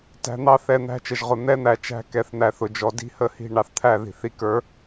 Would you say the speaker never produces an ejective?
yes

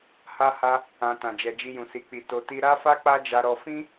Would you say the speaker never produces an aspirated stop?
yes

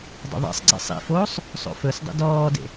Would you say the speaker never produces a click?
no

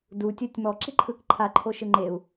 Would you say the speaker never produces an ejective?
yes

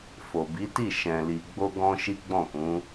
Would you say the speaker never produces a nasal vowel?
no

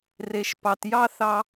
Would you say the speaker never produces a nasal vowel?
yes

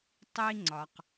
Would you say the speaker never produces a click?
no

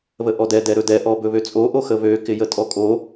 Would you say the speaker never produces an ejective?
no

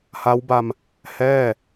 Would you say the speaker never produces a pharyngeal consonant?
yes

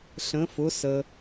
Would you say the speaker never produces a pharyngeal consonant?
yes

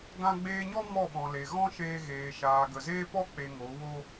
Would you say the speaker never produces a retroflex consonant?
yes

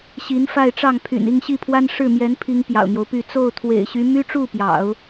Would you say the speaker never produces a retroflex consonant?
no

